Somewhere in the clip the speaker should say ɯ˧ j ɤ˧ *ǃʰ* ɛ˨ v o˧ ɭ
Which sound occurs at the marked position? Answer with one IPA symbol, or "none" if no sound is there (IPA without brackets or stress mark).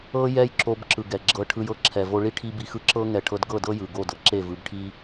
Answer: ǁʰ